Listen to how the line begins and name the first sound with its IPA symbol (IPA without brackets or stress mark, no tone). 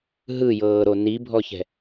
ɦ